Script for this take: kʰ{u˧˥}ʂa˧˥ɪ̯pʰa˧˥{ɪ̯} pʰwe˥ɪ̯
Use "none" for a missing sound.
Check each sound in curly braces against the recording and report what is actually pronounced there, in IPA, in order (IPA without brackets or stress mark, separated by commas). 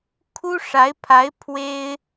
u˥, ɪ̯